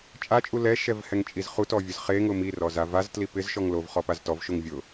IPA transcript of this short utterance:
t͡ʃʼ a t͡ʃʼ u l ɛ ʃ ɛ v h ɛ ŋ t͡ʃʼ i z χ u t ɔ vʲ ʊ z χ e ŋ ʊ m i r ɔ z a v a z t l i p ɪ z ʃ ɔ ŋ l o v χ ɔ p a z t ɔ v ʃ o ŋ vʲ ʊ

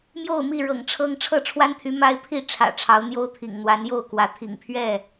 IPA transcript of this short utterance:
m j o˥˨ ʊ̯ m i˥˨ ɻ ɤ̰˨˩ ŋ ʈ͡ʂʰ ɤ˦ ŋ ʈ͡ʂʰ ɤ˥˨ ʈ͡ʂʰ w a˦ n t̪ʰ y˨˦ m a˦ ɪ̯ pʰ i˥˨ ʈ͡ʂʰ ä̰˨˩ ʈ͡ʂʰ ɑ˨˦ ʊ̯ n̪ j o˦ ʊ̯ t̪ʰ ḭ˨˩ ŋ n̪ w a˨˦ n j o˥˨ ʊ̯ k w ä˨˦ t̪ʰ ḭ˨˩ ŋ pʰ ɥ ɛ˥˨

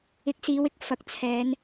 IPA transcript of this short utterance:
ɪ˨˥ k̚ s iː˨˧ w ɪ˥ k̚ f ɐ˨ k̚ t͡sʰ ɛː˨˧ n

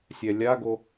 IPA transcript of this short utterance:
sʲ ɛ lʲ a ɡ o

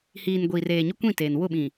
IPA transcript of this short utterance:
h iː˨ n ɡʷ iː˨ r eː˨ ɲ ʊ˦ kʷ ĩ˦˨ t eː˨ n w ʊ˦˨ ɓ ĩ˨

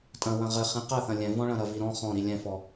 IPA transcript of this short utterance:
tʼ ɐ̃ w ɐ̃ ʁ ɘ χ ĩ q ɐ θ ɐ̃ lʲ ɛ̃ v ɔ̃ ɭ ɐ̃ ɾ ɐ v i ɾ ɔ̃ χ ɔ̃ ɾ i lʲ ɛ̃ f ɔ

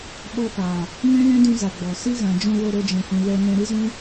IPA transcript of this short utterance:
ɓ ɔ˧ p a˨ | ŋ ɛ̃˦ l ɛ̃˦ d ũ˧ z a˨ ɡ͡b ɔ˨ s ɨ˦ ɣ ã˨ d͡ʒ ũ˧ w o˧ ɾ o˦ d͡ʒ ɛ̃˧ h ũ˧ w ɛ˧ n ɛ̃˧ ɾ ɨ˦ z ũ˦

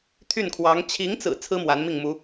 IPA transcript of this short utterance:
t̪ʰ y˥˩ n kʰ w ɑ˧˥ ŋ t͡ɕʰ i˧˥ ŋ t͡s ɹ̩˨˩ t͡sʰ ɹ̩˥ m w a˧˥ n m i˥˩ ŋ m u˧˥

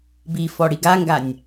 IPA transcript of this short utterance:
b i f ɔ ɽ i ɡ a ŋ ɡ a nʲ

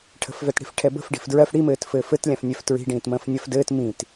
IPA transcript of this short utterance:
ʈʰ ə̤ f v ɛ t ɽ i̤ f ʈʰ ɛ b ə̤ f ɖ i̤ f d ɹ ɜ f ɽ i m ɘː t f ɘː f ɘ t lʲ ã f nʲ ɛ f t ɹ i̤ ɖ ĩː t m ə̃ː f nʲ ɜ f d ɘː t m ĩ t

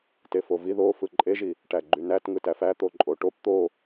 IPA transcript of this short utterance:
t e f o v i ð o f ɯ ǃʼ e ʒ i | ʈ æ ɡ͡ǃ y n æ t ŋ ɯ t æ f æ t̪ o ǃʼ o ʈ o p t̪ o

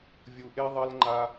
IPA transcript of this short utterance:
vʲ u˨ ʔ e˦ ðˤ ɐ˦ l ŋ͡ǃ a˧

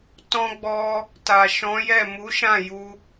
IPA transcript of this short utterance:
t ɔ̃˧ ɡ͡b ɔ˧ | t a˨ ʃ ɔ̃˨˦ j ɛ˦˨ m u˨˦ ʃ ã˦˨ j u˧

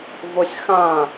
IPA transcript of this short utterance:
v o sʲ x ã

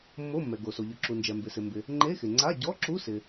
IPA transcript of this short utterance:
mː o˧˥˧ mː ɛ˩ ɡ o˩ s o˩ ʎ ʊ˩ ǁ u˩ n d͡ʒ ɛ˩ m b ɪ˩ s ɪ˩ m b ɪ˩ | ŋ͡ǃ e˧˥˧ x ɪ˩ ŋ͡ǀ a˧˥˧ ɟ ɔ˧˥˧ ǁ u˧˥˧ s ɪ˩

